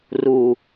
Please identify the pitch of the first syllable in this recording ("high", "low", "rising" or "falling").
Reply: low